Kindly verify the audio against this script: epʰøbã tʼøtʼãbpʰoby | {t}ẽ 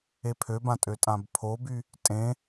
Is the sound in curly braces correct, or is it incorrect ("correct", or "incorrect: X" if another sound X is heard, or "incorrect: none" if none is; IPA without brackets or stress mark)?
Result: incorrect: tʼ